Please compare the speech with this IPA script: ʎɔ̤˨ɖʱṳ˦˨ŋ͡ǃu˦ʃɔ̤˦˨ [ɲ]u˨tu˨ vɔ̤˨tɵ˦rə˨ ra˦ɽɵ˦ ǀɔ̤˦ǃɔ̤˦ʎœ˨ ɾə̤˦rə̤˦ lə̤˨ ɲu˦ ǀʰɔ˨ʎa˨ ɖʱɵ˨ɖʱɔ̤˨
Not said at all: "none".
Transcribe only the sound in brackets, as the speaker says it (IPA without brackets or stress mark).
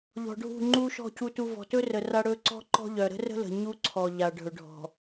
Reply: c